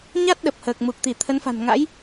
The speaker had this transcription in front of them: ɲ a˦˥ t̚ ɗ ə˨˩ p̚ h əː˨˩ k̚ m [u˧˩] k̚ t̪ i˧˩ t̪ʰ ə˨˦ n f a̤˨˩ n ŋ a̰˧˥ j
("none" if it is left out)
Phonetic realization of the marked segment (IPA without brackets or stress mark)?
u˨˩